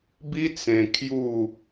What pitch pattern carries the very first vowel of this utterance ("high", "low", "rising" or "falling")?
high